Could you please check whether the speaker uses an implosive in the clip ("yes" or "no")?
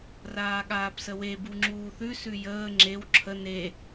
yes